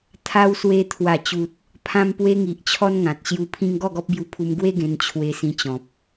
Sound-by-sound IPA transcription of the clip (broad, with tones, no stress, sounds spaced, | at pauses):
t̪ʰ a˧ w s w e˧ t̪ʰ w a˨˩ t͡ɕ u˨ t̚ | pʰ ã˧ m p w e˧ ŋ i˨ ʔ t͡ɕʰ ɔ˦ n ŋ ã˨ t̚ ɕ j u˧ pʰ ĩ˦ ŋ ɡ ɔ˥˧ ɡ ɔ˦ p̚ b j u˧ pʰ u˧ m ɡ w e˦ ɡ ẽ˧ n t͡ɕʰ w e˧ s ĩ˧ t͡ɕ ɔ̃˨ p̚